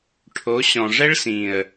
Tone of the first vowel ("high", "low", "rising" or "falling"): rising